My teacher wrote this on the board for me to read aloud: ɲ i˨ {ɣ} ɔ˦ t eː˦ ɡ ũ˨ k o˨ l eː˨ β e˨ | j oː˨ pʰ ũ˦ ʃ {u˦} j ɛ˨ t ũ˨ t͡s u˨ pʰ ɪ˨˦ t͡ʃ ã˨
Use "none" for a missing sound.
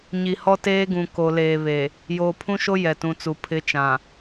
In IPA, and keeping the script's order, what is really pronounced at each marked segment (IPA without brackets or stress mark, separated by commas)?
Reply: h, o˦